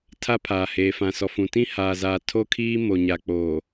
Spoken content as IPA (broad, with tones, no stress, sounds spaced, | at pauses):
tʰ a˦ pʰ aː˨ h eː˨ f ã˨ s ɔ˨ f ũ˨ t ĩ˦ h aː˨ z aː˨ tʰ o˦ kʰ iː˦ m o˨ ɲ a˨ k͡p oː˨